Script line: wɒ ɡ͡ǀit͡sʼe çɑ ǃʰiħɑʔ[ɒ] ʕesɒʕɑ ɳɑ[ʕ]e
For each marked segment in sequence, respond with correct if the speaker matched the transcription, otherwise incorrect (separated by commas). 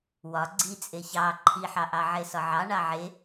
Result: incorrect, correct